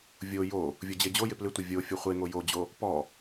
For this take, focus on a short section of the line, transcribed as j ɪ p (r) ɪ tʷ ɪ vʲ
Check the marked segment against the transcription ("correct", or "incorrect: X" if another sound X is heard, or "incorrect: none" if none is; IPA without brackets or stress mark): incorrect: l